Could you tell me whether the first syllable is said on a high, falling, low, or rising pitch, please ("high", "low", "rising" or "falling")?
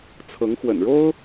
rising